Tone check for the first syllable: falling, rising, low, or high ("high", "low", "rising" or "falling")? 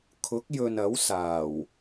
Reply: rising